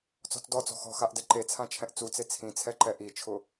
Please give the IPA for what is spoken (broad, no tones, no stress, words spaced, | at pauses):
t͡sɔ̤t͡sdɔt͡sɔ̤ xɔ̤xaʔ dɛǃet͡sʰã t͡ʃʰɛ̃ʔt͡sut͡se t͡sʰĩt͡sʰɛ ǃɛʔit͡ʃʰʊ